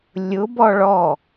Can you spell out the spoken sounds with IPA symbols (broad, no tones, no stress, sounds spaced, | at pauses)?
lʲ ʊ b ɔ ɭ ɔ